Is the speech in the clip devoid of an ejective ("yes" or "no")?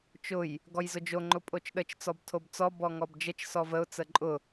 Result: no